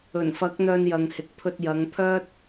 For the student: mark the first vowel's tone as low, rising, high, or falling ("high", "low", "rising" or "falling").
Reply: low